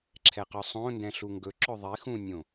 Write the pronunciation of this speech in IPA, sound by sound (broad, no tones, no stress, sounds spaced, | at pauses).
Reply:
ǁʰ ɛ q œ sˤ õ n d ɛ̃ ɬ u ŋ ɡ ɵ ǁ ɵ ðˤ i x ũ nʲ õ